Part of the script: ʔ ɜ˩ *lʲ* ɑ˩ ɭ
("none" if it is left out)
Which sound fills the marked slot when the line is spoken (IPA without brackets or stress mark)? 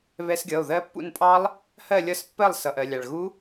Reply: lʲ